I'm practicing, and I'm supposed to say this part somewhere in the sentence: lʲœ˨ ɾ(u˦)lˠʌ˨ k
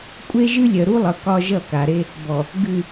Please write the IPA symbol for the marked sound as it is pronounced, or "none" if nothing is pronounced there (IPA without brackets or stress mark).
u˦